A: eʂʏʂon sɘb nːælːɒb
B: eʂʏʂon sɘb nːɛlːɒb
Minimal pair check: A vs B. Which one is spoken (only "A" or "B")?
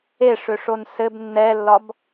B